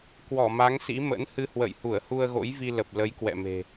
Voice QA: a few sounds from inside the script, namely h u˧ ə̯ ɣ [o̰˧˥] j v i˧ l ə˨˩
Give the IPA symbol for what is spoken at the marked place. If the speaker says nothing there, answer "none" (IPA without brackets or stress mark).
o̰˧˥